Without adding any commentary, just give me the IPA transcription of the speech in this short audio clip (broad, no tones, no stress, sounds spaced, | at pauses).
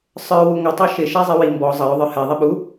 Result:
sˤ ə˞ w u ŋʷ ə tˤ ɑ ʃ ɪ ʃ æ zˤ ɪ w i m b ɔ zˤ ʌ j ʊ ðˤ ə˞ h ɛ ðˤ i ɓ u